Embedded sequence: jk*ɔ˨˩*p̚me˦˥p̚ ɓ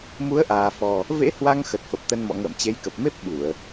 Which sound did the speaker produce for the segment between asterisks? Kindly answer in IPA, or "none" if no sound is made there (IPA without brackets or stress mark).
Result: ə˨˩